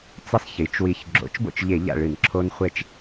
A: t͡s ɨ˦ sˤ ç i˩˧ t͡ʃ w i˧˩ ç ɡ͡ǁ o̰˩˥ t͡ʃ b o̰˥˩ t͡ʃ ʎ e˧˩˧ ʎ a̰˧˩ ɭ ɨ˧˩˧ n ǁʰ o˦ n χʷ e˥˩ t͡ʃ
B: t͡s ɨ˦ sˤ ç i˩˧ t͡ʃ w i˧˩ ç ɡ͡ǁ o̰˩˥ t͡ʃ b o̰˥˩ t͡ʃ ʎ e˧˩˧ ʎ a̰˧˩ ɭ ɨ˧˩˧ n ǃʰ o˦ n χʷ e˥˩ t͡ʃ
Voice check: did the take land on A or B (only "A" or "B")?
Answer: A